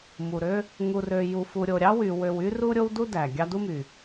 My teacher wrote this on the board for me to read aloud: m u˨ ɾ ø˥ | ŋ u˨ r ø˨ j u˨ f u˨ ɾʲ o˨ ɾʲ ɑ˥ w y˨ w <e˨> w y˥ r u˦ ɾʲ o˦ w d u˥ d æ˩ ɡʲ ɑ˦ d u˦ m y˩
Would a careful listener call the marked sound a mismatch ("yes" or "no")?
yes